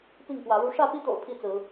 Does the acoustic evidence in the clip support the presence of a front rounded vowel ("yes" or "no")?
no